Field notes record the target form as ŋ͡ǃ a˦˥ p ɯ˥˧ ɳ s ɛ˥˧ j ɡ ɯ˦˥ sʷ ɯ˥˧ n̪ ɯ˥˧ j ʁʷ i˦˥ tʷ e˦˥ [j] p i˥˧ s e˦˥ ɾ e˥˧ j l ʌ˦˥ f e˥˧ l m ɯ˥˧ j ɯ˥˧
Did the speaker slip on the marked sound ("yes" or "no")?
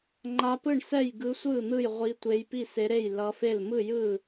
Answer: no